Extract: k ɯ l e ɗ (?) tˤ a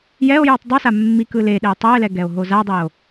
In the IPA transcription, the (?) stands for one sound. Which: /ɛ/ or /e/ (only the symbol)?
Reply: e